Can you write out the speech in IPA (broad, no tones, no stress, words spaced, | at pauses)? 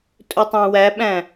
tʼɵtˤæ̃wæɓæ̃